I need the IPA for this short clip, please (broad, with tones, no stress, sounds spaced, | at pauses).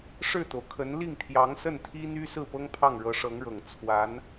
ʂ ɻ̩˥˩ t̪ o˩ ʊ̯ kʰ ə˧˥ n l i˥˩ ŋ t̪ʰ j ɑ˧˥ ŋ s ə˥˩ n t̪ʰ i˥ n̪ y˥ s ɹ̩˥˩ p ɤ˥ ŋ pʰ ɑ˥˩ ŋ ɻ ɤ˧˥ ʂ ɤ˧˥ ŋ ɻ ɤ˨˩ ŋ t͡sʰ w a˧˥ n